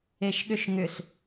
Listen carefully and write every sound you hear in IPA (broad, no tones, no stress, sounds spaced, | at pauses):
e ʃ ɠ ʏ ʃ ŋ ʏ s